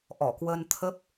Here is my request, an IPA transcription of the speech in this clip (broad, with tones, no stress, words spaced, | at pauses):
ʔɔ˧˩kwə˧nt̪ʰə˦˥p̚